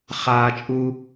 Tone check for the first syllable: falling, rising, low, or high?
high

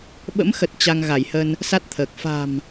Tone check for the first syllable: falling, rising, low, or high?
rising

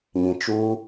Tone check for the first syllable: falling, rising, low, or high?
low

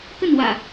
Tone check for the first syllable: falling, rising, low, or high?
falling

